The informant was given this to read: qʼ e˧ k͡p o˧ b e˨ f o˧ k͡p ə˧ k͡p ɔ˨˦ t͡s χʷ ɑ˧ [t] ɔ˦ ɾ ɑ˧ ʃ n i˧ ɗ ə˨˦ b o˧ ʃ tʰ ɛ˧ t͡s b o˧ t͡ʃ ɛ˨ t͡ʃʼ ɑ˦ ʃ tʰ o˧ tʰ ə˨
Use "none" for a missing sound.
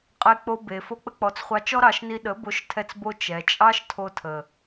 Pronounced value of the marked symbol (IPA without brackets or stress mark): t͡ʃ